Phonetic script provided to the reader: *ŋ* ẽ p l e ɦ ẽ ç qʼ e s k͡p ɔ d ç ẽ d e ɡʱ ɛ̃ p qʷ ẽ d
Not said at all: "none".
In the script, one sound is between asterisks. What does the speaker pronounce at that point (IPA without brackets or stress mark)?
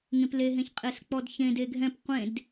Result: ŋ